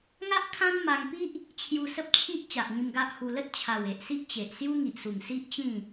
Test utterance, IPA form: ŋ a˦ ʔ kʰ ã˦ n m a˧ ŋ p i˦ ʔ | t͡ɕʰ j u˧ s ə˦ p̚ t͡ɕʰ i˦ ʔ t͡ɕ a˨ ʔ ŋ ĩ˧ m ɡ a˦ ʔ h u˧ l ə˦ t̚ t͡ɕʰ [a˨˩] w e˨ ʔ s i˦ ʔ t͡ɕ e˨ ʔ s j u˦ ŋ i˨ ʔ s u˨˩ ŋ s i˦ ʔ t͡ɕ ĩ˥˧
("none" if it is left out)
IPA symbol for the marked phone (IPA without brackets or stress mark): a˨˩